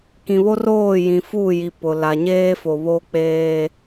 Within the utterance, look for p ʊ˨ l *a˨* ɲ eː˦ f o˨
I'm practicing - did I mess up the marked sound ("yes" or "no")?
no